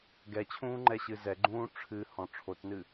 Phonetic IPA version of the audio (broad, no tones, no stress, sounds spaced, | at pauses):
ɡ ɛ t͡ɕʰ ũː ŋ͡ǃ ɛ ɕ ɨ z ɛ ɡ͡ǃ ũː ʈ͡ʂʰ ɨ h ɔ̃ ʈ͡ʂʰ o t n ɨ